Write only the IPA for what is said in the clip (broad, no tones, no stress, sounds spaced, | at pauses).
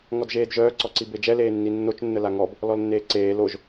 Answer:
ŋ ɔ d ʒ eː d ʒ œː ǀ ɔ ǀ i b e d͡ʒ ɛ l eː nː i nː o t͡ʃ nː ə l a ŋ ɔ b | l ɔ l nː eː ǀ eː l o ʒ